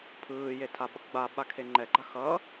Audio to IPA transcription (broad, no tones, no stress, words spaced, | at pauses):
pʰɯːjetʰa ɓʌkɡ͡ba ɓakʰeŋ͡ǃɛɡ͡ǃa xʌ